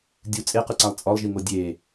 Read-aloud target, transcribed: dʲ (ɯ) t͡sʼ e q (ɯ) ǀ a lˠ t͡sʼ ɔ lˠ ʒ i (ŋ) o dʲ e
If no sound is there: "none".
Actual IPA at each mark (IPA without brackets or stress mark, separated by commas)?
u, ɯ, ŋ